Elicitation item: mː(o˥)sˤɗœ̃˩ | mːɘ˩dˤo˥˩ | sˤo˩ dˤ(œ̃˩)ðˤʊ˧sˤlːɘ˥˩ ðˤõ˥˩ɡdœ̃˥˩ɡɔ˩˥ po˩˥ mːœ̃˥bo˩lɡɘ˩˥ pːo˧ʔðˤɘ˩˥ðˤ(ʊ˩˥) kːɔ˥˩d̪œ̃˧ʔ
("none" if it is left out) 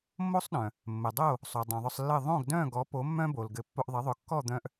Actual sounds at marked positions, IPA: o˥, œ̃˩, ʊ˩˥

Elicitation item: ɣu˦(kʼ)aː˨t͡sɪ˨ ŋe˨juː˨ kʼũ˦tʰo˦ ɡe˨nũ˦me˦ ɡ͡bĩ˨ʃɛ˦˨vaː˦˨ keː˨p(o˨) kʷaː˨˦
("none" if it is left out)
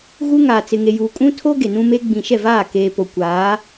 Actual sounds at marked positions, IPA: ŋ, o˨

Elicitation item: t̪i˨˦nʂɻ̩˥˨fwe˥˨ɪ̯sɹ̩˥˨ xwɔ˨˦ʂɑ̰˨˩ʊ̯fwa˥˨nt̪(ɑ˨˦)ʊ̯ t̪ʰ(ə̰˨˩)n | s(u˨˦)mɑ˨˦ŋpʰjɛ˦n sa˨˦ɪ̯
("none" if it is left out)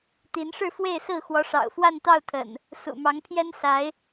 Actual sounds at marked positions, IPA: ɑ˥˨, ə̰˨˩, ṵ˨˩

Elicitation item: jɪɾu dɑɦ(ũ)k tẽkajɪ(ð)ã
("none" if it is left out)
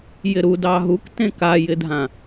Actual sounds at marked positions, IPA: u, dʱ

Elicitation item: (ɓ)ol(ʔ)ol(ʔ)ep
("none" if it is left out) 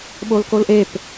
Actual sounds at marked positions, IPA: ɓ, k, ʔ

